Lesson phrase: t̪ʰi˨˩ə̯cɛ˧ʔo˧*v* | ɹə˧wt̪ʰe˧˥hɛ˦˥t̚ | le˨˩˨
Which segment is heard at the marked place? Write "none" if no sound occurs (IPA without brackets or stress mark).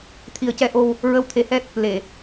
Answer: w